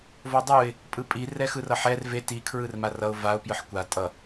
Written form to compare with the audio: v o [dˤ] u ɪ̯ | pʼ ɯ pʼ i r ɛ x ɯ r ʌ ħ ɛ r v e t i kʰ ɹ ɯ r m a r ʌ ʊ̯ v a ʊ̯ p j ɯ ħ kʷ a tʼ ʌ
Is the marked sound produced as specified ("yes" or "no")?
yes